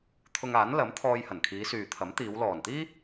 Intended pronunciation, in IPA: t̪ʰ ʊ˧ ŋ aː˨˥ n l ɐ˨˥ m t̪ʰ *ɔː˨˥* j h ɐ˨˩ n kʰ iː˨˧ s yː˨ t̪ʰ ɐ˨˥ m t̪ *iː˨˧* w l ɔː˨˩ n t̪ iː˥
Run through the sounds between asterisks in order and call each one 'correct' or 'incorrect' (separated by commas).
incorrect, correct